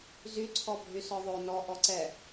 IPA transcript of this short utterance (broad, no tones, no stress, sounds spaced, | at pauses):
z y ǀʰ ɔ bʱ y s ɔ ðˤ o n ɔ ʔ ɔ ǀ ɛ